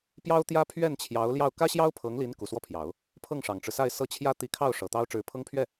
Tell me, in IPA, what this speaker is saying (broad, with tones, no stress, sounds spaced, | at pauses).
p j ɑ˥ ʊ̯ t̪ j ä˥ pʰ ɥ ɛ˥˩ n t͡ɕʰ j ɑ˧˥ ʊ̯ l j ɑ˥˩ ʊ̯ k ä˥ ɕ j ɑ˥ ʊ̯ pʰ ɤ˧˥ ŋ l i˧˥ n k u˨˩ s w ɔ˥˩ pʰ j ɑ˨˩˦ ʊ̯ | pʰ ɤ˥˩ ŋ ʂ ɑ˨˩ ŋ ʈ͡ʂ ɻ̩˦ s a˥˧ ɪ̯ s ɤ˥˩ t͡ɕʰ j ä˥ t̪ i˧˥ kʰ ɑ˥˩ ʊ̯ ʂ ɤ˨˩ t̪ ɑ˥ ʊ̯ ʈ͡ʂ ɻ̩˧˥ pʰ ɤ˥ ŋ pʰ ɥ ɛ˥˩